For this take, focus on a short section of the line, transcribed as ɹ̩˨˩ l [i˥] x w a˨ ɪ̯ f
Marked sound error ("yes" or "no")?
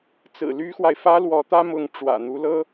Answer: yes